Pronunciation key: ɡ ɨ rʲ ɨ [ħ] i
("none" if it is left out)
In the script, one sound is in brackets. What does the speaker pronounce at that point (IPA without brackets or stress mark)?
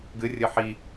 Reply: ħ